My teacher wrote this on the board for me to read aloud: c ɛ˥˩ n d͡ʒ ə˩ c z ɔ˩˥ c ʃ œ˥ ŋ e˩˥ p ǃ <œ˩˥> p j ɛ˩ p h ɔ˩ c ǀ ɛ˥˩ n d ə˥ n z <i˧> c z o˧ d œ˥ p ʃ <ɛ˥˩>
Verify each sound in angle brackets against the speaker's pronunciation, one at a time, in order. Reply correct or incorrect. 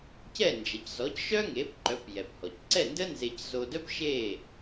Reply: correct, incorrect, incorrect

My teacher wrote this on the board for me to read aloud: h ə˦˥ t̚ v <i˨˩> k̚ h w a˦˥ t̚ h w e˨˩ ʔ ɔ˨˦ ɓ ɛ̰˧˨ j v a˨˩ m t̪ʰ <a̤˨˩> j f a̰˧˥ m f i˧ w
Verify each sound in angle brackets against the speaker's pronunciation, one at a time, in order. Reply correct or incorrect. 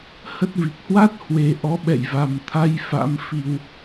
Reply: correct, incorrect

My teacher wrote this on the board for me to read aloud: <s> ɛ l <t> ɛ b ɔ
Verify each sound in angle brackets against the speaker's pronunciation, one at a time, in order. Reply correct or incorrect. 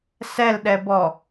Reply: correct, incorrect

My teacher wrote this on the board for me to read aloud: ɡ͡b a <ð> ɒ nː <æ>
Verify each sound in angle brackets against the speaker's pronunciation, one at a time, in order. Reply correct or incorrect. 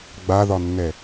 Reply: correct, incorrect

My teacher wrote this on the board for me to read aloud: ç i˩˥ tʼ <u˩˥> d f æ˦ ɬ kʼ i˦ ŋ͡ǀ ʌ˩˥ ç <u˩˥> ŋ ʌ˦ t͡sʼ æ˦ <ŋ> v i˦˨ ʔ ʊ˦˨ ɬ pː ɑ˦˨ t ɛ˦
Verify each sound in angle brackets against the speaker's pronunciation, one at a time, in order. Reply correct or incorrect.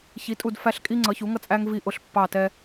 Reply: incorrect, correct, correct

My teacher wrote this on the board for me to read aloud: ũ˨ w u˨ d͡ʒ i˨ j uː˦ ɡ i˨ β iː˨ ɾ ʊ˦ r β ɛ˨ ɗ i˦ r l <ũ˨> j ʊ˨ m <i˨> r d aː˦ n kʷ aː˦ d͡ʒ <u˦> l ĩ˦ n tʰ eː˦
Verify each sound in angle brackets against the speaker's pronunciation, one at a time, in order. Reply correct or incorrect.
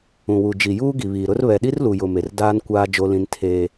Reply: incorrect, incorrect, incorrect

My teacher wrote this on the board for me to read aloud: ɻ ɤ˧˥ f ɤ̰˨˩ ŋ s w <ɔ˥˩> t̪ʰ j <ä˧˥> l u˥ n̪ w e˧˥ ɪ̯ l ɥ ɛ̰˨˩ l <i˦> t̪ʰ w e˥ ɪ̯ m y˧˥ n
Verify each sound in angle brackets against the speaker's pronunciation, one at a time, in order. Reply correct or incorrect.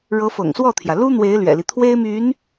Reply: correct, incorrect, correct

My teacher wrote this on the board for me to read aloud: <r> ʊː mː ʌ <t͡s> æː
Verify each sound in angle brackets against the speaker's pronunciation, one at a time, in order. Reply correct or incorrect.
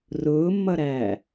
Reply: correct, incorrect

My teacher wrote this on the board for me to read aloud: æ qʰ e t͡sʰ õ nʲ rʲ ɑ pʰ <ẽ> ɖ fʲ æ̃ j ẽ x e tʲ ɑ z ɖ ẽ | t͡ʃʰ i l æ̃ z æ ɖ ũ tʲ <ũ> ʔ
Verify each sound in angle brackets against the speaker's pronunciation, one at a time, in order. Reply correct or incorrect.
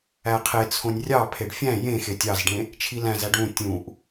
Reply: incorrect, correct

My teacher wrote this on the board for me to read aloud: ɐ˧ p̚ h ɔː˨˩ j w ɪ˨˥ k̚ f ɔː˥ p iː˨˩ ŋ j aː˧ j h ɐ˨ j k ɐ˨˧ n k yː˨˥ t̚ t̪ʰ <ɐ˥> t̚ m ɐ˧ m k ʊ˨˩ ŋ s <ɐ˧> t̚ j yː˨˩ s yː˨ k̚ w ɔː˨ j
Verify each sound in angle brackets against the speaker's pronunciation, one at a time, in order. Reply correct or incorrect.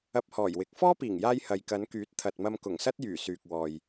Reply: incorrect, incorrect

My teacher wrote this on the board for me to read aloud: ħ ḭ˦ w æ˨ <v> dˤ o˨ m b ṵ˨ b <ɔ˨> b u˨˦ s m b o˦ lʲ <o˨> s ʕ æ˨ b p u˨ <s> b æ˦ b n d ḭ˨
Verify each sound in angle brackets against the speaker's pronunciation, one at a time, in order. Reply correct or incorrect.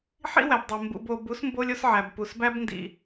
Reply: incorrect, incorrect, incorrect, correct

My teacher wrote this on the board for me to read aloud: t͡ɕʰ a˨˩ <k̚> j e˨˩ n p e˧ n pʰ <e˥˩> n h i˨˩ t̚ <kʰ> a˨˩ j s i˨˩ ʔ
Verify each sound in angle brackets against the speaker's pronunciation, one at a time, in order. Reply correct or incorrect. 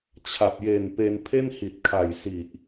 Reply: incorrect, correct, correct

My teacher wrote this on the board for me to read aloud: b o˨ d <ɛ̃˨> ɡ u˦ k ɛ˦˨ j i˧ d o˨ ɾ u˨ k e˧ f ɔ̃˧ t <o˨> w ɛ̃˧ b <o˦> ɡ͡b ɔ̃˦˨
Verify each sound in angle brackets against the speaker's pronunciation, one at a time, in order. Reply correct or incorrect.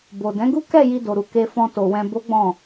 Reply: incorrect, correct, correct

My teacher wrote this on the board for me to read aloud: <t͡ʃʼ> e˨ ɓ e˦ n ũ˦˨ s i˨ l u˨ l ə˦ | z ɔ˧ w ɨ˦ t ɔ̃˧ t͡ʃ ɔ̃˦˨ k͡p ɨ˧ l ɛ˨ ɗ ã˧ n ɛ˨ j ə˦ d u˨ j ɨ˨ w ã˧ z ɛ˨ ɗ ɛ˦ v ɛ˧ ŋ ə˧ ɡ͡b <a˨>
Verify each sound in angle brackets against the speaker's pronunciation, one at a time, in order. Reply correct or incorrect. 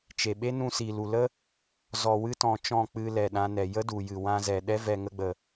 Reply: incorrect, incorrect

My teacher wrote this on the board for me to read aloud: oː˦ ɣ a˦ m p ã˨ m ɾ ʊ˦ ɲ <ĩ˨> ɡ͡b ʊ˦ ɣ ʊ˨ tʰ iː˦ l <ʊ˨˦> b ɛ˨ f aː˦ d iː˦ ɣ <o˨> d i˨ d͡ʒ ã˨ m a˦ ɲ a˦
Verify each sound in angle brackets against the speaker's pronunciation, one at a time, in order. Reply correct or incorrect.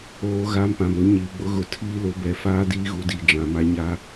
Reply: incorrect, correct, incorrect

